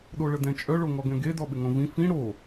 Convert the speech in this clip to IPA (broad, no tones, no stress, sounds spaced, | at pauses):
ɗ o ɭ ə d ɛ̃ t͡ʃʼ œ ɭ o ŋ ɔ ɡ ɛ̃ ɡ e d ɔ ɓ ɪ ŋ õ v ĩ f ĩ ɽ o